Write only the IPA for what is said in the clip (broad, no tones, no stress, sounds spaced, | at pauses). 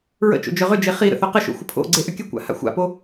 ɹ ə̰ t͡ʃ o̰ d͡ʒ œ ʁ ʏ d͡ʒ e χ i ɾ ə̰ θ œ q ə ʃ o̰ xʷ ə pʰ o̰ ɡ͡ǀ e ʔ ʏ kʲ ə kʷ a̰ h a̰ xʷ a̰ p o